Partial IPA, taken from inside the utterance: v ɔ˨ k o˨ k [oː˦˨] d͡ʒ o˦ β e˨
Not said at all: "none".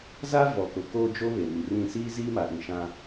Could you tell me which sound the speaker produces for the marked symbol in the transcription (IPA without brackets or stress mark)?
oː˦